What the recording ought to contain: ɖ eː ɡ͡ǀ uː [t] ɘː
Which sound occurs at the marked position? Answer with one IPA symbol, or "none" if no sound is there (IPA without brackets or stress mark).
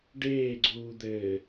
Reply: d̪